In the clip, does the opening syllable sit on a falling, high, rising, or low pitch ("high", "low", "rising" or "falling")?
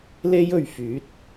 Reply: high